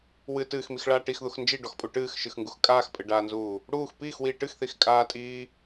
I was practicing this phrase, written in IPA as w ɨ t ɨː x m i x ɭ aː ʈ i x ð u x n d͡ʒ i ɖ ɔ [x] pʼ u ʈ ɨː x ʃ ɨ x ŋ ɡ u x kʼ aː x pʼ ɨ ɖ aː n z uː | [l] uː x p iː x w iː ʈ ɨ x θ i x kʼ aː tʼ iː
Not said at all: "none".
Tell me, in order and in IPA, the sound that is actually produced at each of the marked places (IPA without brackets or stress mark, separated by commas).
x, ɽ